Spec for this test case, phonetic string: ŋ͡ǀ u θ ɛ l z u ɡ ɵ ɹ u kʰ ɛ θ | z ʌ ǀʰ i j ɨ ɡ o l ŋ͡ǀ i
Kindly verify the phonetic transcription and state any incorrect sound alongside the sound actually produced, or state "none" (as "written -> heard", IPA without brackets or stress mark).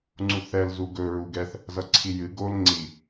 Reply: kʰ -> ɡ